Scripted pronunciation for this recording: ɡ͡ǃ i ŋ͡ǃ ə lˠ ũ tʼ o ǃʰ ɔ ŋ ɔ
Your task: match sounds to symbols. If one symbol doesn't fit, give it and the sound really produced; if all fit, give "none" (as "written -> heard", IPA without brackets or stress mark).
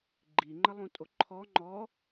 ŋ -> ŋ͡ǃ